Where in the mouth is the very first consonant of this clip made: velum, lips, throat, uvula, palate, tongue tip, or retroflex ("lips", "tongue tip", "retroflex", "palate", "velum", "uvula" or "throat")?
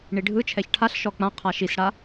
retroflex